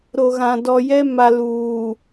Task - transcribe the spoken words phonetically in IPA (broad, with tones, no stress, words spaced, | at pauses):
ɾo˨ɣã˨dɔ˨jɛ˦ ma˨luː˨